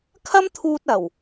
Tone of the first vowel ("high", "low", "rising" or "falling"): high